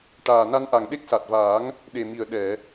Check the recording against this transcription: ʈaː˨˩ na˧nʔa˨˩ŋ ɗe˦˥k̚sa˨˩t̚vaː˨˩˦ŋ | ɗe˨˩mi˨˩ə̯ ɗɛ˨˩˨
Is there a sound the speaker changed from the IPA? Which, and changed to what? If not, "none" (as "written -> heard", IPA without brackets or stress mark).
none